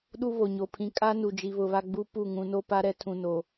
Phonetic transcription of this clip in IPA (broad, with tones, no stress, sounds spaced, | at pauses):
ɗ u˦ β o˨ ɲ o˨ pʰ ĩ˨ kʼ a˦ n u˨ d͡ʒ i˨ β ʊ˨ β a˦ ɡ͡b u˦ p u˦˨ ŋ ũ˨ n o˦ p a˦ ɾ ɛ˦ tʰ ũ˨ n o˨